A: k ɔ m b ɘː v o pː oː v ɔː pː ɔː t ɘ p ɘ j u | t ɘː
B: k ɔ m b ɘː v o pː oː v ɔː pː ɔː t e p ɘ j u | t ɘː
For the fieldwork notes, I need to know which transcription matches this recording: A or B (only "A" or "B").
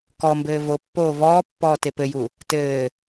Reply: B